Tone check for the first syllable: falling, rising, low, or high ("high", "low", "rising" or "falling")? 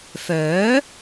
rising